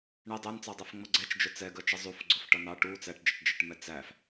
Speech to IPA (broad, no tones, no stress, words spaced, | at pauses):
ɳɛ dˤænt͡sɑdˤæfŋ͡mʌ ɡ͡ǀɛt͡ʃd͡ʒʊ t͡sɛɡɜt͡ʃʌ zˤufɡ͡ǀʊfʈʌ nɑ ʈu t͡sæʈd͡ʒʌʈd͡ʒɜʈmɛ t͡sæf